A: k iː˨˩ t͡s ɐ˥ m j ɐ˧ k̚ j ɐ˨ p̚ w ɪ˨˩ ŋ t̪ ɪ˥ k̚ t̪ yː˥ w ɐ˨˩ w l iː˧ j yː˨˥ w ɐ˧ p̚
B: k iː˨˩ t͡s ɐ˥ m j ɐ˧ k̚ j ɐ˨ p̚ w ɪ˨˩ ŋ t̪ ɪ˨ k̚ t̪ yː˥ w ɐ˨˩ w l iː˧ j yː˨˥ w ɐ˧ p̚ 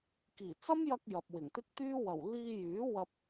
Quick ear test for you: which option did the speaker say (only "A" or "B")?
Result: A